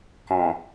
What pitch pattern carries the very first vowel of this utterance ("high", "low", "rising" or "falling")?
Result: low